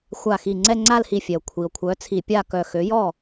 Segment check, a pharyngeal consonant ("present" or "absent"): absent